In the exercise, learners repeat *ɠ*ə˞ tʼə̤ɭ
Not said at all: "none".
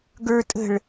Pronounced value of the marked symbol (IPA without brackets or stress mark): ɡ